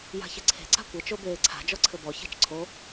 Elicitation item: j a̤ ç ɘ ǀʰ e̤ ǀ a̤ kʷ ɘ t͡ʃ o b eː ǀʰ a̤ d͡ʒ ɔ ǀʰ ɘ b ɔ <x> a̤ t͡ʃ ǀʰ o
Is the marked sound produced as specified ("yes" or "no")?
no